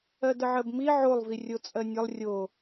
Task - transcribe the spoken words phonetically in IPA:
ɜ d ə ʕ ɜ b m i ʕ o lˠ v i rʲ o t͡sʼ ɜ nʲ ə lˠ rʲ o

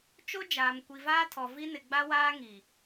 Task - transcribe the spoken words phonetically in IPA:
t͡ʃ o˦ d͡ʒ aː˨ m kʷ i˨ v aː˦ tʰ ɔ˨ v i˦ n ɪ˨ ɡ͡b a˦ w aː˦ ŋ i˨

